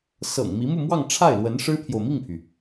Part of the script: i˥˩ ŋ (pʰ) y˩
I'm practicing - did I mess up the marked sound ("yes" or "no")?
no